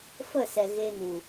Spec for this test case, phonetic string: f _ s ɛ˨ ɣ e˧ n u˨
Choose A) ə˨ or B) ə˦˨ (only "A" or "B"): B